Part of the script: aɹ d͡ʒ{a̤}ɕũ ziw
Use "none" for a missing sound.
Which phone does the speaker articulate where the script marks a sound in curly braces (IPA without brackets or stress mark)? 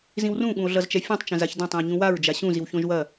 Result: a